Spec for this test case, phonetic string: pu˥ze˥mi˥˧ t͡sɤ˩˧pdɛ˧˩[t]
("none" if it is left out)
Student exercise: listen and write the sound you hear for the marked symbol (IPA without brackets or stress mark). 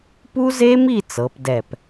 p